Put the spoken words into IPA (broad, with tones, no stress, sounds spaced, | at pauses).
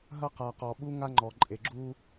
ɦ ɐ˦ q a˨ q ɔ˨ ɓ u˦ ŋ a˦ ŋ͡ǃ ɔ˨ ǃʼ e˨ ɡ͡ǁ u˦